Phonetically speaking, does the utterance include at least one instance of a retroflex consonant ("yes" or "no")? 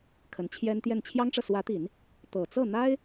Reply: yes